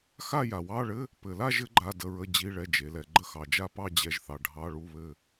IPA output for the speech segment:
x a˥˧ j a˨ w ɑ˧˥˧ ɭ ɘ˧˥˧ | p ɘ˨ l a˥˧ ʒ ɘ˨˦ ɡ͡ǃ a˧˥˧ d ə˧˥˧ ɹ ə˧˥˧ d͡ʑ i˧˥˧ ɭ ɛ˧˥˧ d͡ʒ e˨˦ l ɛ˨˦ ɡ͡ǃ ə˥˧ x ɑ˨ d͡ʒ a˥˧ p ɑ˥˧ d͡ʑ ɛ˨˦ ʒ θ ɑ˨ ɖʱ ɑ˧˥˧ ɭ u˧˥˧ β ɘ˥˧

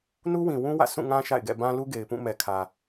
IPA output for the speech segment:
n u˦ w ĩ˨ w ũ˦ w ä̰˦˨ sʰ ũ˦˨ ŋ ã˦ ʃ a̰˦˨ ɪ̯ ɡ ɛ̰˦˨ b ã˦ l u˦ ɡ e˨ ɪ̯ p ũ˦˨ m ɛ˨ kʰ ä˨

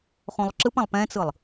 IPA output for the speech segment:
χ õ lˠ ǁ ɯ p ã lˠ p ɛ̃ t͡s ɯ lˠ

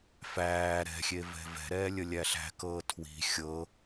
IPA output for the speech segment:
f æː ɾ ɛ̤ xʲ e v ɛ̤ v ɛ̤ ɾ ɛː lʲ ə lʲ æ ɬ æ̤ k ɤː tʰ w i̤ xʲ ɤ

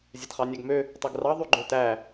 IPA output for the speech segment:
zʲ ɛ t χ ɑ nʲ æ ɡ m ø | tˤ e ɡ r ɑ ðˤ y ɡ͡ǃ ø t æ

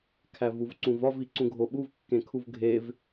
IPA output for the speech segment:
kʰ æ v u v ǀ ũ v ɒ v i ǀ ũ ɡʱ o ɓ u v kː ẽ kʰ u v ɡʱ e v

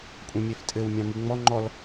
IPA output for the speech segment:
kʷʼ ɛ̃ mʲ ɛ f tʼ ɘ w mʲ ɑ̃ m i ŋ͡m ɔ ŋ͡ǃ ɔ l

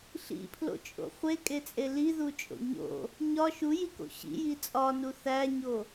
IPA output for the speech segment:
ɬ ḭ pʰ l o̰ t͡ʃʼ o̰ χʷ e kʼ e t͡sʼ e l i ð u t͡ʃʼ o̰ ɲ o̰ | ɲ ɒ ʃ u j i k o̰ ɕ ḭ j i t͡sʼ ɒ n u θ æ ɲ o

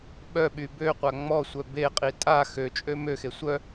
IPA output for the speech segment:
ɓ œ ɓ y b ø qʷ a ŋ͡m ɔ sʷ œ b e qʼ i tʼ a x ø t͡ʃʼ ø m ø x e sʷ œ

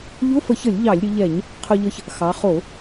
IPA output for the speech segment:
ʎ ʊ˧˥˧ f ə˧˩˧ ç ə˧˩˧ lʲ ʎ ɑ˧˩˧ lʲ ɾʲ ʊ˩˧ ʎ ɛ˧˩˧ ɲ | qʰ ʊ˧ ʎ ə˧ ç | x ɑ˩˧ χ o˧˩˧

